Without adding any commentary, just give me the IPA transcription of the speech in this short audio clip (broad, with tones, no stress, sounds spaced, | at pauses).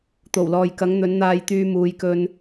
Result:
t̪ o˨˩ w l ɔː˨ j k ɐ˨˥ ŋ n̪ ɵ˨˥ n n̪ aː˧ j t̪ yː˧ m uː˨˧ j k ɵ˧ n